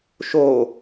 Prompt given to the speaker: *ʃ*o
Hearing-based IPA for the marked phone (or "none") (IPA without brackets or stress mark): ʃ